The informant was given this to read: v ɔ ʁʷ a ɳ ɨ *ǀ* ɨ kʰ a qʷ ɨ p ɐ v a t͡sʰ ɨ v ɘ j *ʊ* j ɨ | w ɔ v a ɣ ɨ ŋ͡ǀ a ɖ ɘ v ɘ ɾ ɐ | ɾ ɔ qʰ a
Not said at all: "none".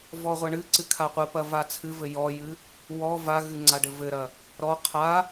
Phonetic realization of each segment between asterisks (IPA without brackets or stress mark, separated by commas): ǀ, ɔ